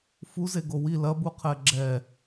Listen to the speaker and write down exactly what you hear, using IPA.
f u z e ɡ o w i l ɐ b u qʰ ɛ ɡ͡ǁ ɛ

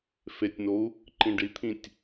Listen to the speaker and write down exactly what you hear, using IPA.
f e tʲ n o u̯ | ǃ ĩ ɖ i t̪ʰ ĩ tʲ

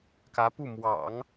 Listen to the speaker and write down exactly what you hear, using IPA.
k ä˧˥ p u˥˩ m w ɑ̰˨˩˦ ŋ

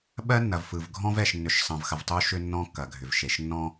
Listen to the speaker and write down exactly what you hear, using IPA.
ɓ ɜ˦ nː ɐ˨ v f ɯ˨ v ɡʱ ɔ̃˦ v ɛ˨ ʃ nː ʏ˨ ʃ sˤ ɐ̃˨ v x ɐ˨ v tˤ u˦ ʃ ʏ˦ nː ɔ̃˦ kː ɐ˨ ɡʱ ʏ˨ v ʃ e˨ ʃ nː ɔ̃˦

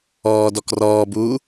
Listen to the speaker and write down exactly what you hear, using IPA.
ɔː d ɔ k r ɔː b uː

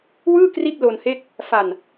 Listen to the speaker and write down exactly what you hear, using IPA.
w ɯː˥˩ k r i˥˩ t̚ l o˧ n h e˥˩ k̚ | f a˧ n

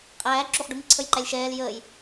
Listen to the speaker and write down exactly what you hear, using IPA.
qʼ æː ǁ u χ ɖ u m i ǀʰ ə j ǃ æ lʲ ʃ ɛː l j əː j

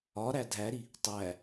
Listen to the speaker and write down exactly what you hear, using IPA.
ɒ ɾ æ dʱ æ ɾ i | tˤ æ

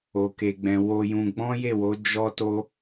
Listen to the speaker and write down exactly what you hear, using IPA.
o˨ k e˨ ɡ͡b ɛ̃˨ w o˧ j ũ˧ ɡ͡b ɔ̃˦ j e˦˨ w o˨˦ d͡ʒ ɔ˦ t o˦

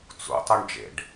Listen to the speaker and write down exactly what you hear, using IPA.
t͡s ṵ tˤ o ɳ d͡ʒ ḛ ɖ

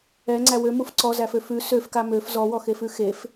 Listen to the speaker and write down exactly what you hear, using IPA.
ɛ ŋ͡ǀ æ w ø m u f ǀ ɔ z æ f ø f ʉ s ø f k a m ø f z ɔ w ɔ x e f ʉ x e f

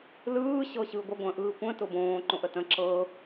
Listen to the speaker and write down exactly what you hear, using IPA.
l ɯː ɕ ɤ ɕ ɯː ɡʷ ə ɡʷ ə̃ː ʔ ɯː kʷ ə̃ t ʊ b õː ǃ õ ʔ ə t ə̃ ǁ ɤ

